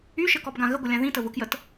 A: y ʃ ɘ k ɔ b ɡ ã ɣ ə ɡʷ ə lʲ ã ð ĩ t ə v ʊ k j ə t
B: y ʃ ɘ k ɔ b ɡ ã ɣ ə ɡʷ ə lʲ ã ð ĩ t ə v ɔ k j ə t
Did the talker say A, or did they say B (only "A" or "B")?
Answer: A